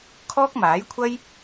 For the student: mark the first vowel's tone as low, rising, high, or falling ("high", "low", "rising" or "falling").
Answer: high